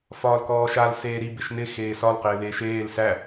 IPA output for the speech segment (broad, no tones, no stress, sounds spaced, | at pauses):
f ɒː l k ɔː ʃ a l s eː ɾ i b ɪ ʃ n ɪ x eː s ɒ l q ɪː β eː ʃ eː l s æ